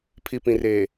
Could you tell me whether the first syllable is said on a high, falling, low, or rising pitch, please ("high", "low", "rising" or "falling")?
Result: low